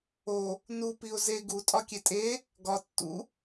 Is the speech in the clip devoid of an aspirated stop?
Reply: yes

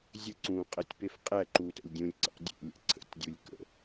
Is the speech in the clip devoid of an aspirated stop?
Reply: no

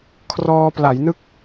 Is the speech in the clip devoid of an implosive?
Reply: yes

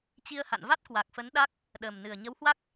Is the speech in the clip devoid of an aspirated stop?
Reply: yes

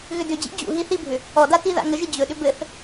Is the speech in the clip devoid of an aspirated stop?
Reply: yes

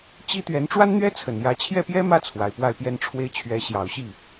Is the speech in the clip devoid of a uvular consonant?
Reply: yes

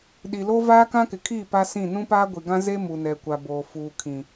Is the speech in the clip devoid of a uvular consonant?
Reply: yes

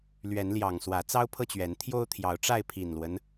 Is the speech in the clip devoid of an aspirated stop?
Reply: no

